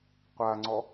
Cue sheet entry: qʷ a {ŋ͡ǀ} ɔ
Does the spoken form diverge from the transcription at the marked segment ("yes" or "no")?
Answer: no